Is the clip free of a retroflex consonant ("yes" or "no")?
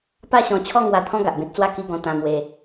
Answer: yes